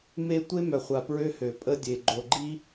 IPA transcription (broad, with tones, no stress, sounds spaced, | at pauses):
m e˦ tʷ e˦ m œ˨ χʷ a˨ p ɹ ø˦ h ø˨ pʼ ə˦ dʲ e˨ ɡ͡ǃ o˨ ɡ͡ǃ i˦